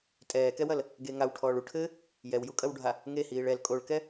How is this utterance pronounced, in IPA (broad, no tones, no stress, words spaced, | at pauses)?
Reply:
tʼɛːkɛwɐl | ɡeŋaw ʈʰɔːɭu ʈʰɘ | jɛwjukʼɐwɖʱa | ŋehiːɭ ɛl kʼoɭkɛ